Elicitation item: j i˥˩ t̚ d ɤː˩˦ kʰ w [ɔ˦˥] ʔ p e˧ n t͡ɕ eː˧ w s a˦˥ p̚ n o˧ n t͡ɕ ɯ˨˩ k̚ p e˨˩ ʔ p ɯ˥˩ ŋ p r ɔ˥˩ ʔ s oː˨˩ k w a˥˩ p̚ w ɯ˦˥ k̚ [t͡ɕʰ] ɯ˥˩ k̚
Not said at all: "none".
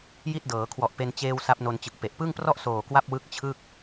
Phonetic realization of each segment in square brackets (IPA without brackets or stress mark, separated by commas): ɔ˨˩, t͡ɕʰ